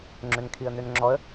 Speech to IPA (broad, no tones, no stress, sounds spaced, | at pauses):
ŋ͡ǁ ø n kʰ i ə̯ n ø n ŋ͡ǁ ɔ ə̯